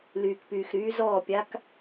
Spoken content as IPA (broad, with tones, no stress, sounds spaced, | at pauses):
l yː˨ k p yː˨ x ɾ yː˧ z ɔː˦˨ pʲ a˦ k